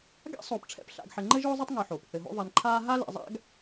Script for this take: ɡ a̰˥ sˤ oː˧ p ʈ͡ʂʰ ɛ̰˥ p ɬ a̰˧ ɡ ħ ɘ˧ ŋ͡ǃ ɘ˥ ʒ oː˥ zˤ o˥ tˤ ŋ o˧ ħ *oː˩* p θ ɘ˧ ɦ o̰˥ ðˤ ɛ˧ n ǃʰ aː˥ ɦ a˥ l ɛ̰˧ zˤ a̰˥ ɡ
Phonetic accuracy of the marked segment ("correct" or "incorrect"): correct